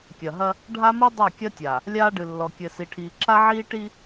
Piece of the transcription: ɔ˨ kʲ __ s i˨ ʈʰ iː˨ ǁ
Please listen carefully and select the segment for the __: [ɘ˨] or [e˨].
ɘ˨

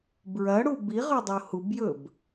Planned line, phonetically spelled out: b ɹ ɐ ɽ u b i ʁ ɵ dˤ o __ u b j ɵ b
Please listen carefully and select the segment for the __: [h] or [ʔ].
h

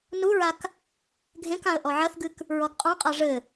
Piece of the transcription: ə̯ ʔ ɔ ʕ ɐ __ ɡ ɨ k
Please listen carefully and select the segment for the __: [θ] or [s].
θ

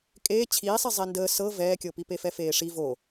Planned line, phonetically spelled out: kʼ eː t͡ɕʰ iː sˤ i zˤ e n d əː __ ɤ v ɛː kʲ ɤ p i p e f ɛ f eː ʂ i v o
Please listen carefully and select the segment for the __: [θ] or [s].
s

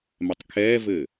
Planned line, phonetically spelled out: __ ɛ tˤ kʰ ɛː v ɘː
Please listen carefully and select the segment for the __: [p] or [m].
m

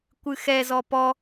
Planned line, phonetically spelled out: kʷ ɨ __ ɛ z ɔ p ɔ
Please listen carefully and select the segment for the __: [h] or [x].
x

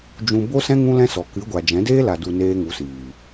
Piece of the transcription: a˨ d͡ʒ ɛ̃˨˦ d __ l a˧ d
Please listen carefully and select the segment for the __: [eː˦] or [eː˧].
eː˦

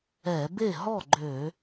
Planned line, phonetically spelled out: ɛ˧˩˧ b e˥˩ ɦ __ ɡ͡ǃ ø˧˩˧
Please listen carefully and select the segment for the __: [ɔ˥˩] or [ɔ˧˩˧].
ɔ˥˩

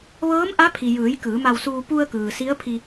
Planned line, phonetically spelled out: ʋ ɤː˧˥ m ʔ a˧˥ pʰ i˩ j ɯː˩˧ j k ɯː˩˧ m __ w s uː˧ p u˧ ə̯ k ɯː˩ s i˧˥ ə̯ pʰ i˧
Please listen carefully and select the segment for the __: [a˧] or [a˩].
a˧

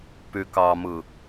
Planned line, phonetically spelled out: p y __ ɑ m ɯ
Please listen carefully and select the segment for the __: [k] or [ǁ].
k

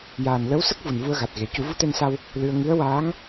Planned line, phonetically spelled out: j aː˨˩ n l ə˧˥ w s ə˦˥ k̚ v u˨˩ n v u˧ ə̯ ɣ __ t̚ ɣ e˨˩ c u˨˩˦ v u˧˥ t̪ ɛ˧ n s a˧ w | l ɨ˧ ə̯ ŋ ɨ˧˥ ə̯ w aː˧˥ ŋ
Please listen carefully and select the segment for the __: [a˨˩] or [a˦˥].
a˨˩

